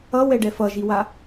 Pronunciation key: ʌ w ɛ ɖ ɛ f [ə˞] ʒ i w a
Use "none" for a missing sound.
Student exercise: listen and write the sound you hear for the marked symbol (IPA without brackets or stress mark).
ʌ